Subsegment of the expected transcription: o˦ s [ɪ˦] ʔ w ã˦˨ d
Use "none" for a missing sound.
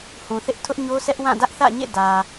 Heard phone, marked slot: ɛ˦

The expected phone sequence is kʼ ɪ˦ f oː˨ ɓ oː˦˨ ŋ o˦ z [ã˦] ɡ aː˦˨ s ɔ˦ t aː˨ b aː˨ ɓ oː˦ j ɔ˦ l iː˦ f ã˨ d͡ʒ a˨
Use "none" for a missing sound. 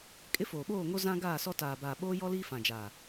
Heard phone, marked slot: ã˦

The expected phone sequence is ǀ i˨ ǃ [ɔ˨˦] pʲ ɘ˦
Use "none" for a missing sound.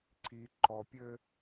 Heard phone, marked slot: ɔ˨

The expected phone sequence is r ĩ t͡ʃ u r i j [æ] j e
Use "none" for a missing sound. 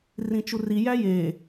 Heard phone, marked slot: æ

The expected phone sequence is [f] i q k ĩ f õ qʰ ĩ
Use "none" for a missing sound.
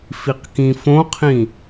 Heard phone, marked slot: f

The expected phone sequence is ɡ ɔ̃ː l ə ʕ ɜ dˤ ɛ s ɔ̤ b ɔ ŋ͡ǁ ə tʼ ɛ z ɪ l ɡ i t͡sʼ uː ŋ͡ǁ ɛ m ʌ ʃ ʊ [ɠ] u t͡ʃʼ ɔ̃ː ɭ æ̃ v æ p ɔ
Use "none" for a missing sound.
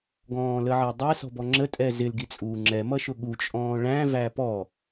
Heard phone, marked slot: ɠ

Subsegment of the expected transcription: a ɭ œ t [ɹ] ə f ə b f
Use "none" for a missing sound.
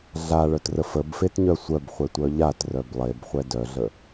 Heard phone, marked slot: r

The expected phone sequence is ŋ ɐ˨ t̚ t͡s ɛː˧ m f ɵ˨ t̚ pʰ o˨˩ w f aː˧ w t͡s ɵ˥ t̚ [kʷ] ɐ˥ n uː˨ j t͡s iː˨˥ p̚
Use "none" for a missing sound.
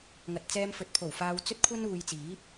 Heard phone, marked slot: kʷʰ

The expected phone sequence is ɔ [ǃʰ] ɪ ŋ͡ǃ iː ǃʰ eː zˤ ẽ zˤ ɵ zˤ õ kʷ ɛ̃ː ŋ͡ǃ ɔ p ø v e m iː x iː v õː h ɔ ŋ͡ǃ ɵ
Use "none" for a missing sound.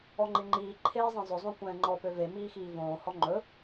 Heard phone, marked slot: ŋ͡ǃ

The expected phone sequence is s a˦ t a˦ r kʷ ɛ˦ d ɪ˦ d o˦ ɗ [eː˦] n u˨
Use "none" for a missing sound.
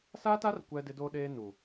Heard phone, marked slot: eː˦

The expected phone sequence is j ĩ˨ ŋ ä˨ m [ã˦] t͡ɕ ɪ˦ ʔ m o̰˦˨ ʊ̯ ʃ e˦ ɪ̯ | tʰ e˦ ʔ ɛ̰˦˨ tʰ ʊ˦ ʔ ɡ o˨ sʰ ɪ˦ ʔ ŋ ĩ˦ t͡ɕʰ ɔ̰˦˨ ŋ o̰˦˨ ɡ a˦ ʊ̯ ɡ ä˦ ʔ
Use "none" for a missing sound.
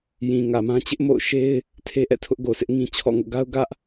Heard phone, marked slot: ã˦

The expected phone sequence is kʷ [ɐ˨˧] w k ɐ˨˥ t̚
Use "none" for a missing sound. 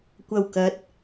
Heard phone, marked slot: ɐ˨˩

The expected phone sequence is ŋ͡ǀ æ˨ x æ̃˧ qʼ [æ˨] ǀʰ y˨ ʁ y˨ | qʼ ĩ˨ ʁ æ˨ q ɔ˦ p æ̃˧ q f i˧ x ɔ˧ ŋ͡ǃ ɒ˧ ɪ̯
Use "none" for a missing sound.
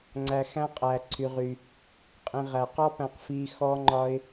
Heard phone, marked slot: æ˨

